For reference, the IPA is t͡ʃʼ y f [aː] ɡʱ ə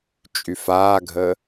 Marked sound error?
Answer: no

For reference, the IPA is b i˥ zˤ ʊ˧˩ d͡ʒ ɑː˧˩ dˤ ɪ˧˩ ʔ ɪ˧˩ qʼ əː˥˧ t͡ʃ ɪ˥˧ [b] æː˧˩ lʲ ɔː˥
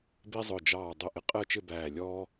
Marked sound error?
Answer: no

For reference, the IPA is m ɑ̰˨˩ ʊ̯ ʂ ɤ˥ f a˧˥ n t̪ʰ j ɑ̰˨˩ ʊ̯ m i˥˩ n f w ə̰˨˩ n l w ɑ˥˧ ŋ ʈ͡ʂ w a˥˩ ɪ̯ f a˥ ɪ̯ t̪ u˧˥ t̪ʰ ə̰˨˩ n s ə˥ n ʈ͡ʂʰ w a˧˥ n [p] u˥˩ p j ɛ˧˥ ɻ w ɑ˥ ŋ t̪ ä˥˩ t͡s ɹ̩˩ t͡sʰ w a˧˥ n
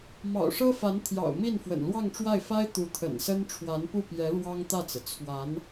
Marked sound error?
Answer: no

